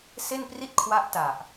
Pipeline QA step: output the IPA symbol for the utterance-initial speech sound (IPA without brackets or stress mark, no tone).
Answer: s